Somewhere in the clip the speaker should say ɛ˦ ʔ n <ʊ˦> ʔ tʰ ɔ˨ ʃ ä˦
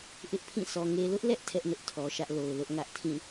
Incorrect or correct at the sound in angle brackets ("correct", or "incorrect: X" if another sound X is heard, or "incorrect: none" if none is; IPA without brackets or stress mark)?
correct